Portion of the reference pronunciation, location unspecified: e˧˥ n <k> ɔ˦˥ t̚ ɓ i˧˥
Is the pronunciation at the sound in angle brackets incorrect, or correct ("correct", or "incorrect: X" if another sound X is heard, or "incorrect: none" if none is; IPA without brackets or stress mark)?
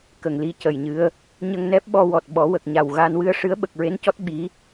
incorrect: c